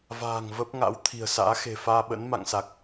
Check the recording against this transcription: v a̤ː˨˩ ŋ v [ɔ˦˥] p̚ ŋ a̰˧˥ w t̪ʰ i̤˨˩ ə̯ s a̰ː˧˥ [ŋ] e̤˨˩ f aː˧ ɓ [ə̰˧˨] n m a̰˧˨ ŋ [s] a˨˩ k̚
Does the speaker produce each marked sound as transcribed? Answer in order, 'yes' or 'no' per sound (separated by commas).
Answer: no, no, no, yes